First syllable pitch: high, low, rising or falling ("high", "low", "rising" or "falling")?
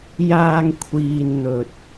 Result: low